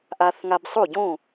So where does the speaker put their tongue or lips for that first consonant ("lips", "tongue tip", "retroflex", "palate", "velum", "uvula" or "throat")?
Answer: throat